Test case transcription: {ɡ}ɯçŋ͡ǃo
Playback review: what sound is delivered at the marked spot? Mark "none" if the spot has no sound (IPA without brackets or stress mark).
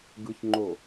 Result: ɡ